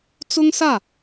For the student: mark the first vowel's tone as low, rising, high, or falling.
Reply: high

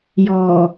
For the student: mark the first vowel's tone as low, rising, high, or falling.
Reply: low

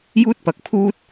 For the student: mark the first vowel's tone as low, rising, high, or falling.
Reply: high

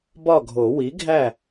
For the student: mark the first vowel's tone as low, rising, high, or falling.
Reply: falling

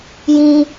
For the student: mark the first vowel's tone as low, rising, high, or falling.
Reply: high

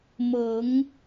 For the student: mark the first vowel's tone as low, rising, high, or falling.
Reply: rising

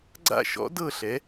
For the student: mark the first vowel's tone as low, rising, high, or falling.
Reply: falling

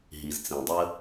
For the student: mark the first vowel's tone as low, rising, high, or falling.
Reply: low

